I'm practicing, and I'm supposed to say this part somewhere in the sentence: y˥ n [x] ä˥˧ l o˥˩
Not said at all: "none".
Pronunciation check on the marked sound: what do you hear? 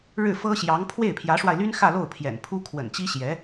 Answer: x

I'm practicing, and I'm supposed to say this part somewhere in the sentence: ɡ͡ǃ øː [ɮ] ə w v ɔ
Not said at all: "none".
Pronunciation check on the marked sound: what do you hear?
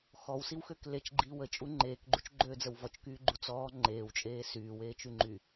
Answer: d͡z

